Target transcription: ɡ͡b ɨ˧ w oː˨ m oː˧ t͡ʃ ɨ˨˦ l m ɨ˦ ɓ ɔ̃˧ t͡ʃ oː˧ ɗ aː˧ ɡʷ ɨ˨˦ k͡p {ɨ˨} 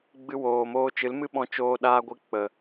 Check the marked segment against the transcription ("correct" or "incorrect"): incorrect